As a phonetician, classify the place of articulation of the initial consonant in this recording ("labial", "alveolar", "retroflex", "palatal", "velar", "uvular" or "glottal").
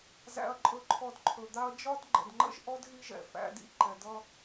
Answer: alveolar